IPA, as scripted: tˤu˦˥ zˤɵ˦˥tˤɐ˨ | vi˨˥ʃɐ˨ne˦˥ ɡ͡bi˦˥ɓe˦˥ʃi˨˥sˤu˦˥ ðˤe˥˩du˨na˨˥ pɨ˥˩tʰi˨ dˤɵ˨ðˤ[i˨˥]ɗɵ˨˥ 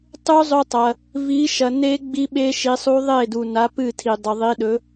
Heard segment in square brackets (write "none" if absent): i˨˥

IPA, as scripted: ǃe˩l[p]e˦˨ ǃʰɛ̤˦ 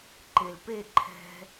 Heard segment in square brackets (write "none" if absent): p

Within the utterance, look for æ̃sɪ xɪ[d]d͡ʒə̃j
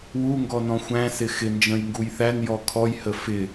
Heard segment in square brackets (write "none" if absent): n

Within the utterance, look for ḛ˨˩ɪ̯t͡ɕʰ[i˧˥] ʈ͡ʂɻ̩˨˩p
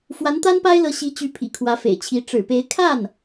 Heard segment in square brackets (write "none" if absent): i˧˥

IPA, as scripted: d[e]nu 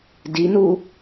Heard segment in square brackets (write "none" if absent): i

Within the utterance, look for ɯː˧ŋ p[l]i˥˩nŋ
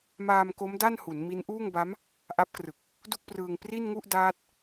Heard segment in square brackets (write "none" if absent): r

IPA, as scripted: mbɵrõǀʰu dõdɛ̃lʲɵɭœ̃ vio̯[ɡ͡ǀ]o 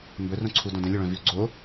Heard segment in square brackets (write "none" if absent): ɡ͡ǀ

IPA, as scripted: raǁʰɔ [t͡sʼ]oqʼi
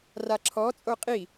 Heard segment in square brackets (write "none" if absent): t͡sʼ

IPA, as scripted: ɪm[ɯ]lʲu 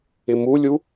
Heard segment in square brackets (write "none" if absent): u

